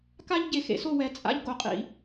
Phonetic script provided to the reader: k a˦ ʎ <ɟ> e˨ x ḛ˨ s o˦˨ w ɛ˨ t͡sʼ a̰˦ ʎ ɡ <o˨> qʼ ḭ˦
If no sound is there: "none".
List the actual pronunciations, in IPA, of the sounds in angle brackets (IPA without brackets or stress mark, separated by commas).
ɟ, o˨